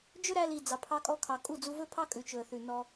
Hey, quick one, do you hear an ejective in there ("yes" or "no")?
yes